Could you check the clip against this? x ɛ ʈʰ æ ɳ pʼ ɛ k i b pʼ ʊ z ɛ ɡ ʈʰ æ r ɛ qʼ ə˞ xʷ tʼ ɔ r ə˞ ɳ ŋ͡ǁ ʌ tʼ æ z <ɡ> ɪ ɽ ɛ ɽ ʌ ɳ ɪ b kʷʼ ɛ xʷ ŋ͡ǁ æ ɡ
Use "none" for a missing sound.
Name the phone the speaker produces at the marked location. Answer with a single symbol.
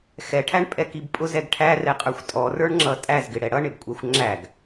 ɡ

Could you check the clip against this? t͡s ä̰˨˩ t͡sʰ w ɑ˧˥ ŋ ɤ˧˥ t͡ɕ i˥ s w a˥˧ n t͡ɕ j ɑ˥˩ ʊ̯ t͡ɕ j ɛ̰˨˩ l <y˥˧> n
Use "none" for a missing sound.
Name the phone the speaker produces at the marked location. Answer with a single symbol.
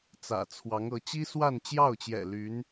y˧˥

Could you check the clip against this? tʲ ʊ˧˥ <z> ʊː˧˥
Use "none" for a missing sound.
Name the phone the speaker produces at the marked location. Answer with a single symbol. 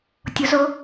z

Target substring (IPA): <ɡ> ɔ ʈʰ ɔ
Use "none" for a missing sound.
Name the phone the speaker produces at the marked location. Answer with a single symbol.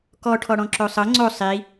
k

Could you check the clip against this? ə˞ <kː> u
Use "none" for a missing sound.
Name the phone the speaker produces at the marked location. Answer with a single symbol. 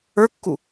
kː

